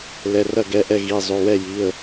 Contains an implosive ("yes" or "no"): no